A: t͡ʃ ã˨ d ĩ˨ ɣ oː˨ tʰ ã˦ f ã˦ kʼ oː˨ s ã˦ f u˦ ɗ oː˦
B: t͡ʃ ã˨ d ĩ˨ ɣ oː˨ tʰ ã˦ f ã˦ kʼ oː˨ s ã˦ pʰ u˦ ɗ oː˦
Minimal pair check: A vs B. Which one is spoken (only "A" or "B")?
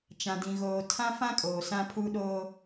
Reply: B